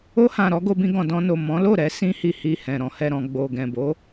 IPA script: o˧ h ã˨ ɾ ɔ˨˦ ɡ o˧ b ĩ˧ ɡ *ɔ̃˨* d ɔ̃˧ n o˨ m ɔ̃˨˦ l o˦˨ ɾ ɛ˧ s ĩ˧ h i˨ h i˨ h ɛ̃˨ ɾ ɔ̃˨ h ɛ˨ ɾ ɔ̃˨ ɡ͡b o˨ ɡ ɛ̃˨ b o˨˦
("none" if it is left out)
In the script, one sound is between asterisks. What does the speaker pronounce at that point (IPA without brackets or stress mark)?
ɔ̃˨